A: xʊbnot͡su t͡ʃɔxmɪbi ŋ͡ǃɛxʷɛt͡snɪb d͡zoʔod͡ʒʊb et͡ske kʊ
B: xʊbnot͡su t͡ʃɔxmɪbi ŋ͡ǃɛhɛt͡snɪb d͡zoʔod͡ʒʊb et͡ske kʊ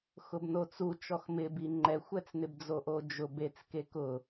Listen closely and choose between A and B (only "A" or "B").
A